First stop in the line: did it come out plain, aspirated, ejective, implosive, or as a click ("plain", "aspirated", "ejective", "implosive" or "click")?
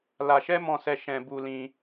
plain